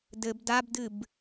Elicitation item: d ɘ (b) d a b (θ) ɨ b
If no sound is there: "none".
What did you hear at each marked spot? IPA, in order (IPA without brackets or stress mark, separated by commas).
b, d